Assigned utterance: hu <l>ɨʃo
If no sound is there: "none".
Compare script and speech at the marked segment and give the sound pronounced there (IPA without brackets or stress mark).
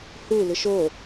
l